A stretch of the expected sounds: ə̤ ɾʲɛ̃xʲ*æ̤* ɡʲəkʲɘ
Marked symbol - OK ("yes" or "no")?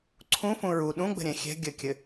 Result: no